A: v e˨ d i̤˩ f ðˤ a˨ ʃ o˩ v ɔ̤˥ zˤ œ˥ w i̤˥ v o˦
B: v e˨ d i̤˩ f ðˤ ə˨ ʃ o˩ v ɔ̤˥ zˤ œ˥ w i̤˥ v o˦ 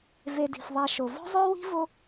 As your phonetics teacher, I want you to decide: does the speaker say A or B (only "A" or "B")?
A